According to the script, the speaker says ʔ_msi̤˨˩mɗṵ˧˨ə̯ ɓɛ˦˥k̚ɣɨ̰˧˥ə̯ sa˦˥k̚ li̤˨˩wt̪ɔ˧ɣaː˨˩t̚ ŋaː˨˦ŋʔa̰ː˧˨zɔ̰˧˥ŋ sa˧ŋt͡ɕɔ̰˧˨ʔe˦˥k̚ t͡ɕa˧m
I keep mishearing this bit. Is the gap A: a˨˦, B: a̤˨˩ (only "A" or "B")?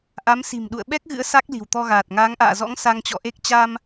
A